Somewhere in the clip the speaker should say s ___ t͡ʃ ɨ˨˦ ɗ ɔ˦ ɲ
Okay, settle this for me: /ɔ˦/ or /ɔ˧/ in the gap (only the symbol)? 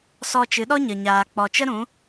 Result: ɔ˧